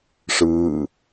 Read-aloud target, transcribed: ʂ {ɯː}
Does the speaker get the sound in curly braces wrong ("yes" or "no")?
no